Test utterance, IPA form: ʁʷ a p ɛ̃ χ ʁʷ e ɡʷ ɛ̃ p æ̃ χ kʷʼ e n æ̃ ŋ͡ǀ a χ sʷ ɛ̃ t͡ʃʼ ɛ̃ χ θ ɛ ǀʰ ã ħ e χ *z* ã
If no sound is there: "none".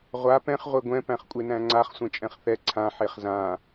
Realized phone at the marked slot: z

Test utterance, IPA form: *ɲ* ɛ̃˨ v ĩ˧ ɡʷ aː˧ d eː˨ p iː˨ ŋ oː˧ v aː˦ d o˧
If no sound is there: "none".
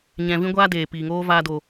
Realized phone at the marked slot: ɲ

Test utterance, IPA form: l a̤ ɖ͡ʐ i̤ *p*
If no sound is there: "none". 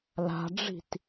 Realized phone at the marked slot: t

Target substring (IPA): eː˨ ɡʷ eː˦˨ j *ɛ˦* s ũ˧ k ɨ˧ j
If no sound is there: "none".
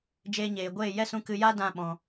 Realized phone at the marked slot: ɛ˦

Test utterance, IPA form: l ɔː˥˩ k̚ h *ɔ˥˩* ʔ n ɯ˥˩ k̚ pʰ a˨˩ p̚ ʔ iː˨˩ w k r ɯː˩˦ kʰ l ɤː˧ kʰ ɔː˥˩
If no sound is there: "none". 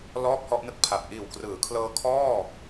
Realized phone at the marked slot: ɔ˥˩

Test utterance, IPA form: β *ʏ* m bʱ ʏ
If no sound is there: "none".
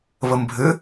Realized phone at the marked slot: ə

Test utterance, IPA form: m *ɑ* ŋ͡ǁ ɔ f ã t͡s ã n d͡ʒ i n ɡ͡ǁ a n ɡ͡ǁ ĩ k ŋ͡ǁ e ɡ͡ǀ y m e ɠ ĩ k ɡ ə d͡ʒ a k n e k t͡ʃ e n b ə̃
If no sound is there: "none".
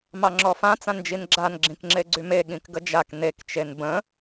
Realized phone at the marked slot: ɑ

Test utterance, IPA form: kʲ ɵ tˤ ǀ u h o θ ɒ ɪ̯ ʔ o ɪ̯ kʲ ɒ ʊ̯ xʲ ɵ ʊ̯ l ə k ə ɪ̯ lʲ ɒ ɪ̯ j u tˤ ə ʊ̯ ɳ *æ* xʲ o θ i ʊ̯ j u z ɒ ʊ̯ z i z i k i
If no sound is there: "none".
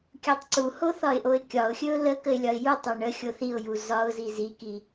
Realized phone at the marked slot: ə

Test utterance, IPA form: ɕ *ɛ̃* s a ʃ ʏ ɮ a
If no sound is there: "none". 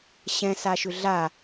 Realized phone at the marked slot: ɛ̃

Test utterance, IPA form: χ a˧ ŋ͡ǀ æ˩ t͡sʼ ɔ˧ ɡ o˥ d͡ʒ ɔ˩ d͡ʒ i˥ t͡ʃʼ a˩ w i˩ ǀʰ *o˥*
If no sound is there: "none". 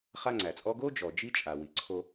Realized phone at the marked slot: o˧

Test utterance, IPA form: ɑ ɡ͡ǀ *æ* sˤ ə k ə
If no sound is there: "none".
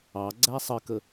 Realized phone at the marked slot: æ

